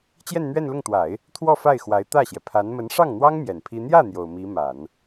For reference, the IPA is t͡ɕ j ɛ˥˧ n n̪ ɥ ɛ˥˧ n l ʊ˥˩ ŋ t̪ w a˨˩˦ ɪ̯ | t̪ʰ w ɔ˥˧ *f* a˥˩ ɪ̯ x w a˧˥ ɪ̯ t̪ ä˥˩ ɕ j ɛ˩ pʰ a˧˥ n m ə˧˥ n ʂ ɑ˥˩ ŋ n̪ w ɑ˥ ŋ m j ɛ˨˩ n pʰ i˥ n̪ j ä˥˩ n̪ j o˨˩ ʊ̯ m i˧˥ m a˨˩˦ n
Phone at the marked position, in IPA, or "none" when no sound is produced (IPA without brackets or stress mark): f